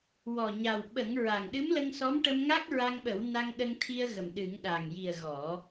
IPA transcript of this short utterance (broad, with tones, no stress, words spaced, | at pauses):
wɔ˨˩ɲa˨˩w ɓə˨˩˦ŋ ɹa˨˩ŋɗɨ˧˥mlə˧ŋsɔ˧˥m ʈə˧mŋa˦˥k̚ɹa˧ŋɓə˨˩˦w na˧ŋɗə˧ŋt̪ʰi˧ə̯ɣə˨˩m ɗɨ˨˩˦ŋɗa˨˩ŋ ji˨˩ə̯ ɣɔ˨˩˦